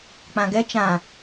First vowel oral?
no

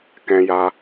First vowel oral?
no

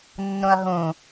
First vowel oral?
no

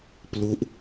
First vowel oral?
yes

